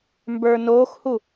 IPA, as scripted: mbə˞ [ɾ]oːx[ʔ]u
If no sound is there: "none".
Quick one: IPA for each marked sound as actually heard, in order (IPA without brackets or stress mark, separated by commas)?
n, h